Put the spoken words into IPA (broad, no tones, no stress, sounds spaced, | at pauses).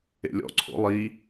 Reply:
ḛ lʲ ɔ̰ ǀʰ o̰ lˠ i